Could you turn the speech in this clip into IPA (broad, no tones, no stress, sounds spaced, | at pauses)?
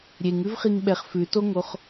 ɾʲ e ŋ ʉ v χ i ŋ ɓ ɛ χ f ʉ t o ŋ o χ